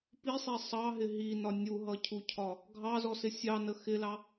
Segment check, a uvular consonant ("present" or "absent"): absent